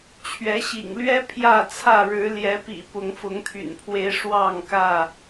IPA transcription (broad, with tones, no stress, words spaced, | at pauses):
t͡ɕʰɥɛ˨˦ɕḭ˨˩ŋlɥɛ˦ pʰjä˥˨t͡sʰä˥˨ ɻɻ̩˨˦ljɛ˨˦pḭ˨˩ pʊ˨˦ŋfʊ˨˦ŋt̪ʰy̰˨˩npʰwe˨˦ɪ̯ ʂwɑ˥˨ŋkä˥˨